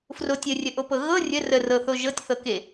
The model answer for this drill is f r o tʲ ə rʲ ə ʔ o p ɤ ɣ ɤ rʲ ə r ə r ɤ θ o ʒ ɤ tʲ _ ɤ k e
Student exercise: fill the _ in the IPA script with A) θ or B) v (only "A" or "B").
A